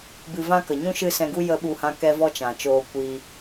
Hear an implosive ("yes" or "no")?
yes